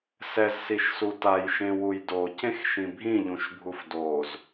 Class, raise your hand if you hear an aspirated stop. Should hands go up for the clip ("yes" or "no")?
no